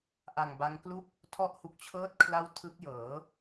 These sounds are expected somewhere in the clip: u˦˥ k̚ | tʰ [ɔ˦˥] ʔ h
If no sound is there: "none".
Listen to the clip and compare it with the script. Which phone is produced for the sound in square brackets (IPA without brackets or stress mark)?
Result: ɔ˦˥